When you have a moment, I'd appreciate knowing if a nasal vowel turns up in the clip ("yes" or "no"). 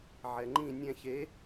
yes